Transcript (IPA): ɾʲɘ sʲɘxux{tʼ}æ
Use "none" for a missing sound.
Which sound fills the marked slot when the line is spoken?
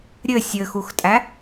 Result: tʼ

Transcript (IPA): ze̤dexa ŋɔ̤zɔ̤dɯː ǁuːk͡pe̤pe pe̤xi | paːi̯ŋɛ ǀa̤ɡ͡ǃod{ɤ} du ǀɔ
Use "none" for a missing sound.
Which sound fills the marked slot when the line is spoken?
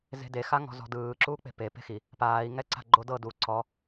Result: ɤ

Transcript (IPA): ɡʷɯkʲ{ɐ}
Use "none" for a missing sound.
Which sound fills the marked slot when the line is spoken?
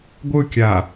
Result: a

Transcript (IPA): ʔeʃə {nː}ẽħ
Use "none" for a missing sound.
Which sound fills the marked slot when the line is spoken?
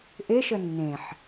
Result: nː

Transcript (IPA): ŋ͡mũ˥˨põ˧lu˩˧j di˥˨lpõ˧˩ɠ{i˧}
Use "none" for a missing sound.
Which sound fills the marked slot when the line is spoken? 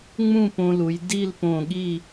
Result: i˥˨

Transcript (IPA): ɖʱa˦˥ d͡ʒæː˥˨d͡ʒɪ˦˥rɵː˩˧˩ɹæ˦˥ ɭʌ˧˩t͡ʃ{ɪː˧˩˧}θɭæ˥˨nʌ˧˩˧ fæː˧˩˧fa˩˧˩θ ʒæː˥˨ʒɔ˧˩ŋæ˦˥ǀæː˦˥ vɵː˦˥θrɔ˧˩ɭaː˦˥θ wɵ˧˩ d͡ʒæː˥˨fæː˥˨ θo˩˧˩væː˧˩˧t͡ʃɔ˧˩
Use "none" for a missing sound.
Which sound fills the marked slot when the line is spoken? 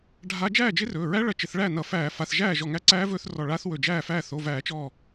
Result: ɪ˧˩˧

